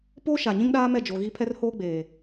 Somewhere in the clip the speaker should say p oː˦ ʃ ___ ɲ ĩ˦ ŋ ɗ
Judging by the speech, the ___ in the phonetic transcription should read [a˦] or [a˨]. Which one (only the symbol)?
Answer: a˨